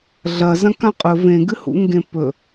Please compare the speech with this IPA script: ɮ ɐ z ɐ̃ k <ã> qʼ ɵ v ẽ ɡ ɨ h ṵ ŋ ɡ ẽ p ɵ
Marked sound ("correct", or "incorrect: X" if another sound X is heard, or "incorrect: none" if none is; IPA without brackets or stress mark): correct